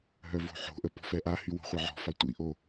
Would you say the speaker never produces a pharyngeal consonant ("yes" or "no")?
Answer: no